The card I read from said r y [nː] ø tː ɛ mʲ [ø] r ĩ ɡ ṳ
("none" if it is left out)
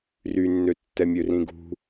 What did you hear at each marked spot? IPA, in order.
nː, ø

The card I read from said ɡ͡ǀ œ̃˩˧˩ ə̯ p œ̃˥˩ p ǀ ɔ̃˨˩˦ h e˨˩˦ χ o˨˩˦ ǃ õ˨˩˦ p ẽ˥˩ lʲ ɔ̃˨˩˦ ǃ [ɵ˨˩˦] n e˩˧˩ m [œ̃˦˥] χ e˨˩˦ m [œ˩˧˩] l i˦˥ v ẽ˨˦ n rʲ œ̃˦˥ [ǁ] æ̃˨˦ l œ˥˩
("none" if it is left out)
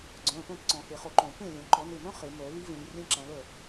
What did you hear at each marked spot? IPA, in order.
ɔ˨˩˦, œ̃˦˥, œ˨˩˦, ǁ

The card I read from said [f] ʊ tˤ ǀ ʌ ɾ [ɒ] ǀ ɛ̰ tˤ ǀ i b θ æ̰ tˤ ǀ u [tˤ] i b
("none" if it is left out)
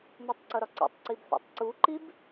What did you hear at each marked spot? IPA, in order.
m, ɒ, ǃ

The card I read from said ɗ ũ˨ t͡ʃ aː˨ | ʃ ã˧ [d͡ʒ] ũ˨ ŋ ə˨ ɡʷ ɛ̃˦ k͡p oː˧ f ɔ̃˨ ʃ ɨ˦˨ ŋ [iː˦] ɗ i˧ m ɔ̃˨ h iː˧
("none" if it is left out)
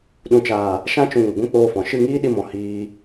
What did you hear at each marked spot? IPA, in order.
t͡ʃ, iː˦

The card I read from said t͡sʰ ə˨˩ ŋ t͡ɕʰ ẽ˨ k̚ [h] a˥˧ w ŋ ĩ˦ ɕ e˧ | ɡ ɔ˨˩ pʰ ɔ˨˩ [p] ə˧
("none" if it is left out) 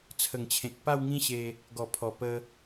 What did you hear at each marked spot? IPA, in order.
p, p

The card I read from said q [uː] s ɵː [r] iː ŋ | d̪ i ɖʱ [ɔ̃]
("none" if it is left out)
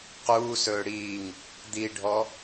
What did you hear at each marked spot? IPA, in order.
uː, ɽ, ɔ

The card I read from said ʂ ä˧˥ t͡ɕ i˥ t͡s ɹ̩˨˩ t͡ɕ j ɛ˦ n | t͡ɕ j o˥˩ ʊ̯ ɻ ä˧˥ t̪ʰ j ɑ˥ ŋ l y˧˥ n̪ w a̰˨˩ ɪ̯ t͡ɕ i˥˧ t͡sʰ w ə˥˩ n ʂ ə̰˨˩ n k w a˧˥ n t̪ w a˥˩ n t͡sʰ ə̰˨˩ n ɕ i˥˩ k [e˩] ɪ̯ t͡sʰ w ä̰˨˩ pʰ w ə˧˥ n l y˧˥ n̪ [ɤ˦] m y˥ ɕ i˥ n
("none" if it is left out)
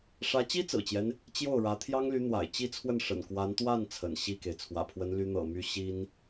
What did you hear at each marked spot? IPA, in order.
e˩, ɤ̰˨˩

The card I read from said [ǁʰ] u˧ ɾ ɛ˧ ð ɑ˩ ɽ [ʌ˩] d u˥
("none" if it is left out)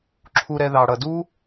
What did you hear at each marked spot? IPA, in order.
ǁʰ, ʌ˩

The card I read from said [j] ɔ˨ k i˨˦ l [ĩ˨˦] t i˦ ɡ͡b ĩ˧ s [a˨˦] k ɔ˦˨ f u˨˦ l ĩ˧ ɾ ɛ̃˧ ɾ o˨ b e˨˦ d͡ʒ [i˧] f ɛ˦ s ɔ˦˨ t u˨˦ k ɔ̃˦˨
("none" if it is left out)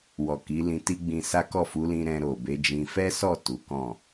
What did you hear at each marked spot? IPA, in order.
w, ĩ˧, a˦, ĩ˧

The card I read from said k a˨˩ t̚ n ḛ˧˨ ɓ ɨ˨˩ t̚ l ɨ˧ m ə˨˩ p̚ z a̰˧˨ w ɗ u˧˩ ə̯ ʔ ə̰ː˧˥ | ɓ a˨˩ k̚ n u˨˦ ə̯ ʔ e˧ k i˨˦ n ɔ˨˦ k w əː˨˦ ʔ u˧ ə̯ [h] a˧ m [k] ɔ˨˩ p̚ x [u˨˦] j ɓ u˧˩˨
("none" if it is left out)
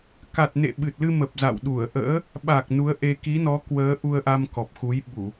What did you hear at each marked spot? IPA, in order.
ʔ, k, u˨˦

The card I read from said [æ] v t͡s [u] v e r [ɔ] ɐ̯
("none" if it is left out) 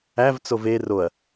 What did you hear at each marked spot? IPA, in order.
æ, o, o

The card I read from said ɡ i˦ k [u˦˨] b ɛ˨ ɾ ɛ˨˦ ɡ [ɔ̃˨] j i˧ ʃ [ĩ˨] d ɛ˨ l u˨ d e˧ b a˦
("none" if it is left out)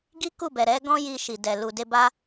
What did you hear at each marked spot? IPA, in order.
u˦˨, ɔ̃˦, i˨

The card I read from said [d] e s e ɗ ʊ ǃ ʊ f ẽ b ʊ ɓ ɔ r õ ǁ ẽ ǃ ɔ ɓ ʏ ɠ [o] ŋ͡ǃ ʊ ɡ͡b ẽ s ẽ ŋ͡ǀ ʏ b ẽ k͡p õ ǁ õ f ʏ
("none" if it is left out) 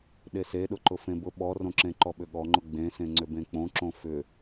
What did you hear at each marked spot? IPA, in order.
ɗ, ɔ

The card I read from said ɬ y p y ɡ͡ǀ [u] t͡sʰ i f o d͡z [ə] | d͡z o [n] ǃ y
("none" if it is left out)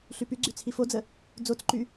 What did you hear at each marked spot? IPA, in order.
y, ə, t͡s

